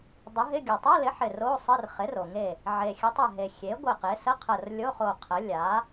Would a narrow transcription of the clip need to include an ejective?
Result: no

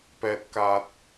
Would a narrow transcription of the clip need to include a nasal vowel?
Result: no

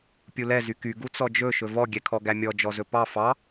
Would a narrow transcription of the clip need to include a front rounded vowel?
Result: yes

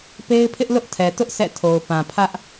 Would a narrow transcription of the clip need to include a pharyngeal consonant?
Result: no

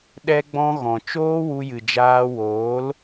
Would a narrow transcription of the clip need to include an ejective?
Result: no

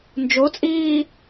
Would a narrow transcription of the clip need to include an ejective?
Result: yes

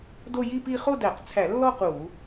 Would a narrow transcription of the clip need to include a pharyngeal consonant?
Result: no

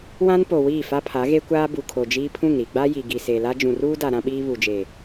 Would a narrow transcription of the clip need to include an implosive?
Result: yes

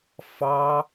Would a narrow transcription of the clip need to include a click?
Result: no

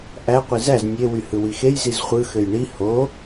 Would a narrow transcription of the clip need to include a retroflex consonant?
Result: yes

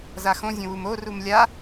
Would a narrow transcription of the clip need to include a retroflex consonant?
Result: no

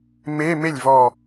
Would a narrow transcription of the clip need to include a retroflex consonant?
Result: no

